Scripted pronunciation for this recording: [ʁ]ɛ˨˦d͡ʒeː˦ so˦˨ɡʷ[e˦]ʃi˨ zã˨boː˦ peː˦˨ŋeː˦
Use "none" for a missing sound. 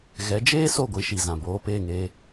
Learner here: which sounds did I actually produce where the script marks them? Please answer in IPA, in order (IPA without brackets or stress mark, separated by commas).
ɣ, i˦